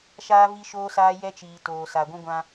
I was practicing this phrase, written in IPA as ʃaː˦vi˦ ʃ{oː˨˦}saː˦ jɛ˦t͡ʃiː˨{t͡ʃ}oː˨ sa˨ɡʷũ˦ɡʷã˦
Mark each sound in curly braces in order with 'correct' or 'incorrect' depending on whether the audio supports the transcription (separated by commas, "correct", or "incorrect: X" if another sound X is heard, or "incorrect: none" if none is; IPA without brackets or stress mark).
incorrect: oː˦, incorrect: t